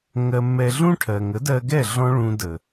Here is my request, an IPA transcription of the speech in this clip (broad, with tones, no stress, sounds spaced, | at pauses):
ŋ ɜ˧ mː ɛ˧ ɮ ũ˦ ʈʰ ɜ˨ ŋ ə˨˦ d ɜ˧ ɡ ɛ˦˨ ɮ ɔ̃˦ ɭ ũ˧ d ə˨